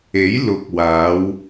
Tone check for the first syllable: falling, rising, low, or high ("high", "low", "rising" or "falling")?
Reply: rising